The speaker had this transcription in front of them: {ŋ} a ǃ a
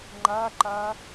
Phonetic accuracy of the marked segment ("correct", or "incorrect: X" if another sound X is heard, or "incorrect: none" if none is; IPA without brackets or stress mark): incorrect: ŋ͡ǃ